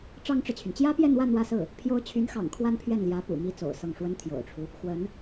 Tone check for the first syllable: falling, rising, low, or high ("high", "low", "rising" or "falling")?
high